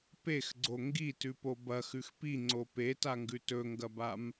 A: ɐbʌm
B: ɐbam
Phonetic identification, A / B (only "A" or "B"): B